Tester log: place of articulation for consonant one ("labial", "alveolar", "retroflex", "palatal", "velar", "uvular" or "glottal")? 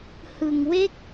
glottal